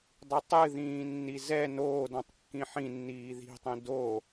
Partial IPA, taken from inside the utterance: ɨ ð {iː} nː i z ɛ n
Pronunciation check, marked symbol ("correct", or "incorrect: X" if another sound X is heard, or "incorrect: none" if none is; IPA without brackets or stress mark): incorrect: ĩː